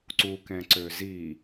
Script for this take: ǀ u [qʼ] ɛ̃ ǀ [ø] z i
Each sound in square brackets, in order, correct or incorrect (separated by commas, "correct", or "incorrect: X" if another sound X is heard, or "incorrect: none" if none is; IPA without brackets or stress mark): incorrect: k, correct